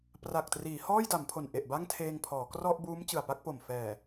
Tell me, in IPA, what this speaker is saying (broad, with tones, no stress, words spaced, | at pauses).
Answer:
pra˨˩k̚triː˩˦ hɔː˥˩jda˩˦mpʰo˨˩n ʔe˨˩ʔba˥˩ŋtʰeː˧ŋ pʰɔː˩˦krɔ˥˩ʔ buː˦˥mt͡ɕɯ˨˩a̯pa˥˩k̚po˨˩m fɛː˨˩